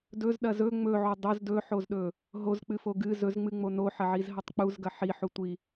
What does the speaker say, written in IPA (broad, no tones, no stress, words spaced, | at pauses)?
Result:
dɵzɗɐ zɵ ŋ͡mɵʕo dˤoz dɵħozɗɵ | ɦozk͡pɨfo ɡɨ zɵzŋ͡mɨŋ͡mo noħɐʕizɦɐtˤ k͡puzɡɐ ħiħutʷi